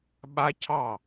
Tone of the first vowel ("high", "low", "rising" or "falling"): high